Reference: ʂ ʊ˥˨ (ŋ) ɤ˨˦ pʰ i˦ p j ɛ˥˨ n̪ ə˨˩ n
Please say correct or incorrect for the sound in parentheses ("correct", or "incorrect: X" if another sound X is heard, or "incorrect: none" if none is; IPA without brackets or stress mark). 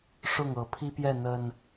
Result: correct